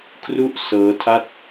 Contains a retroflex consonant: no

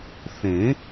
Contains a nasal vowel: yes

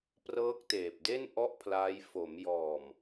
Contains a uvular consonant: no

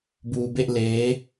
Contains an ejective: no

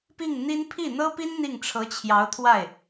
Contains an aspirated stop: yes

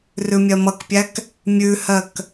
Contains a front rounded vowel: no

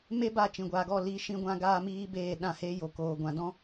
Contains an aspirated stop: no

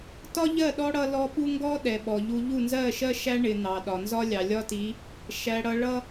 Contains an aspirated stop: no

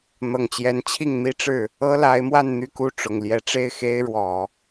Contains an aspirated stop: yes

